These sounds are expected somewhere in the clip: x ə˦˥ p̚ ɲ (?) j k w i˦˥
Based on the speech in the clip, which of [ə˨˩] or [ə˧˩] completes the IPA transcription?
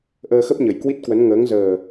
ə˨˩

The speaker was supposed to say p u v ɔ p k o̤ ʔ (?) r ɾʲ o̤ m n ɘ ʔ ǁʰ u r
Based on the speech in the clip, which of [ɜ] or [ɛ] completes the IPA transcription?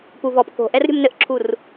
ɛ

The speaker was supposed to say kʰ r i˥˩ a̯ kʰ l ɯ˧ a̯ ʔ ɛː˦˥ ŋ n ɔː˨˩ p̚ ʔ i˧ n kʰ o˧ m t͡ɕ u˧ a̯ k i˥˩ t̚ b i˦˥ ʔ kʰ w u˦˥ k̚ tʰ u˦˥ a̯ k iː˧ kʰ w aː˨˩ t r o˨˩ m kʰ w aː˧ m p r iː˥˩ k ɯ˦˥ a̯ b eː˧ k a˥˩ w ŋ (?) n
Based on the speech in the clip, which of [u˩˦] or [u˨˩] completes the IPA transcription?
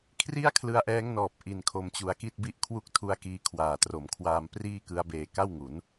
u˩˦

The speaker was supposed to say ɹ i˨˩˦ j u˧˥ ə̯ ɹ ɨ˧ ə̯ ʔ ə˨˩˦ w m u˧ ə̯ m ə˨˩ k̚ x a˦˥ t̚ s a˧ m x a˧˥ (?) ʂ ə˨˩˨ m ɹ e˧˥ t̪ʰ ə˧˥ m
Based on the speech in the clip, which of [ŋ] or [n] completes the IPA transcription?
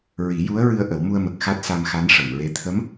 n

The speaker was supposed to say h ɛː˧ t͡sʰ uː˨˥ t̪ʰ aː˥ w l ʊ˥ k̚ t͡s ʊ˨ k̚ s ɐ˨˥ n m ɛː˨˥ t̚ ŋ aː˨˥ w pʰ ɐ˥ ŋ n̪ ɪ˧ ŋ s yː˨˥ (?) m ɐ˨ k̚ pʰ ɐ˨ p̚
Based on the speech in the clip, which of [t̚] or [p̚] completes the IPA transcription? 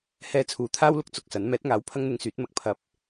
t̚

